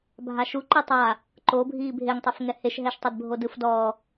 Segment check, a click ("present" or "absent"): present